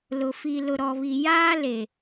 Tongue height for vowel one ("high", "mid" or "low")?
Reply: high